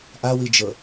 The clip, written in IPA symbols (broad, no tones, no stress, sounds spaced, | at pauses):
ʔ a w i d͡ʒ ɤ